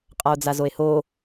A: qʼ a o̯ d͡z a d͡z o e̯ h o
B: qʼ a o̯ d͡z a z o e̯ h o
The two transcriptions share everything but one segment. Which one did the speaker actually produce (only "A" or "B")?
B